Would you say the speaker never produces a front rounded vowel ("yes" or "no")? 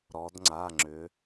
no